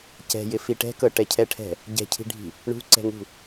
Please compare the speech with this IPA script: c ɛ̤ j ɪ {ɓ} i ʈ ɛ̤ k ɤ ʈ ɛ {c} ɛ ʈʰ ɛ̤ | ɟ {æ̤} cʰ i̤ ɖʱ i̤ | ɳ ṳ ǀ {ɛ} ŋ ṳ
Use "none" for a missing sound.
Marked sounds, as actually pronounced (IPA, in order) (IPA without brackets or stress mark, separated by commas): f, cʰ, ɛ̤, ɛ̤